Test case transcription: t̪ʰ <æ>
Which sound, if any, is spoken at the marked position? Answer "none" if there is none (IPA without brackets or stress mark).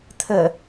ə